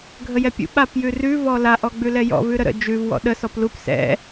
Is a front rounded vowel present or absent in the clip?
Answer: absent